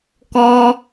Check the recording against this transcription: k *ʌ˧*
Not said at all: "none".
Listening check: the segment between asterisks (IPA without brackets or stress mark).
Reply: ɔ˧